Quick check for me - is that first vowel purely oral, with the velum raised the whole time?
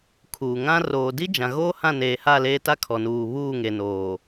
yes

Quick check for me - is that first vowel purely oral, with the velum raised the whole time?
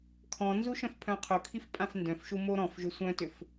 no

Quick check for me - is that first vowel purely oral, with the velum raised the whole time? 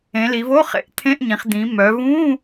no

